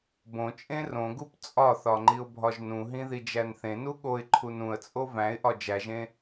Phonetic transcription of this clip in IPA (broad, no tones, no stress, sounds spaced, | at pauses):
b õ t͡ʃʼ ẽ r õ ɡ u p t͡sʼ ɒ θ ɒ ŋ͡ǃ i ʊ̯ bʱ ɒ ʒ n ũ ɦ ĩ ð i d͡ʒ æ n θ ẽ n u ɠ o ɪ̯ ǃʰ u n ũ ə̯ t͡sʼ o v æ̃ ɪ̯ ʔ ɒ d͡ʒ æ ʒ ẽ